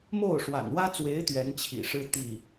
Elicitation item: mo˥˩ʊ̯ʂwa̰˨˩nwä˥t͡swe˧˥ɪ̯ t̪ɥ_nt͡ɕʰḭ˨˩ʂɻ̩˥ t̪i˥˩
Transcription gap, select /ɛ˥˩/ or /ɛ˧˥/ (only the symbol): ɛ˧˥